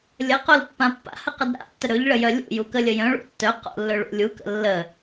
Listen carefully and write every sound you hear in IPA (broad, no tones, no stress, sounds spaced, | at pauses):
lʲ ə q o l pː ã pː a̰ h ə q ə d ɾ a̰ tː ə ɾ ɵ ʎ ɭ ə j œ lʲ ṵ j u k ə lʲ ə j œ̃ ɭ ṵ tː œ q o̰ lː ɵ ɭ ṵ lʲ u k ə̰ lː ə